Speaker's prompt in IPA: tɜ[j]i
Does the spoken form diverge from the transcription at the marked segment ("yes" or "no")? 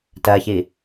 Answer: yes